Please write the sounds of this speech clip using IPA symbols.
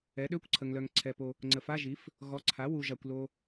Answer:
ɛ˩˥ɗø˧˥˧kʷǀʰə˨ŋlœ˨ŋ ǀʰɛ˨po˨ | ŋ͡ǀə˨fa˧˥˧ʒi˩˥f | ɣɔ˩˥ ǀʰa˩˥wu˨ʒa˨kʷ lo˨

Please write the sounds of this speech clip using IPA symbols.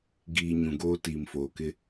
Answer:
ɡiː˨ ɲũ˨ɡoː˦ tiː˨mfoː˨kɪ˦

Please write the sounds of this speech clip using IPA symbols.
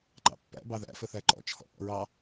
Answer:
ǃɑ̰pːæ̰ bɑðæ̰fəθæ ǃɔ̰t͡ʃʰɔ̰ ʔɔ̰ɹɑ

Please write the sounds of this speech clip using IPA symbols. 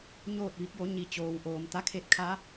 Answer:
ɲoː˥˨t̚ʋi˧˥k̚jo˧˥ ɲi˩t͡ɕoː˩wʔoː˩m t̪a˧˥kʰe˧t̚kʰa˧˥

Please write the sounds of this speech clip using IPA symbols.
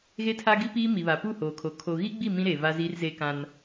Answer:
ɣe˦tʰa˦ɡi˦piː˦ mi˨βa˨pu˦˨ hoː˨kʰo˨ kʰo˨ɣi˦ɡ͡bi˦˨ mĩ˦ɾeː˨ va˦ziː˦rzeː˦kã˦n

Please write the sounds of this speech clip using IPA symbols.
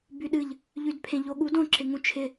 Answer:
byɗɨʎ | ʎydpʰẽʎoɠud õ ǁɪŋũt͡ʃʰɪ

